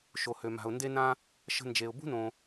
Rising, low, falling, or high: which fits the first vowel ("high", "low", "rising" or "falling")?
low